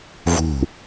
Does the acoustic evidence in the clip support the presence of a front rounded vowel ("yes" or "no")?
no